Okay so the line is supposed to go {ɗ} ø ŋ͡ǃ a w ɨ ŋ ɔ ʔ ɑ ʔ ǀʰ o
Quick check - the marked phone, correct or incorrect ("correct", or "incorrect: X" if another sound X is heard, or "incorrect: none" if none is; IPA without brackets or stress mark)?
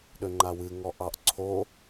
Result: correct